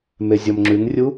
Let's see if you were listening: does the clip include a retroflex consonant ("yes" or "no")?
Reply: no